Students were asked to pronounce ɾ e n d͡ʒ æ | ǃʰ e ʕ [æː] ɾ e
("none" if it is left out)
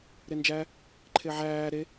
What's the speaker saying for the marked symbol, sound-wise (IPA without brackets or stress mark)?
æː